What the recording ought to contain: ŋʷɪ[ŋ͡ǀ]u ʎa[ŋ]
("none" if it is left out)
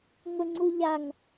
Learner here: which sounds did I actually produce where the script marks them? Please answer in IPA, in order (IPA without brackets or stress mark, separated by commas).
ŋ͡ǀ, ŋ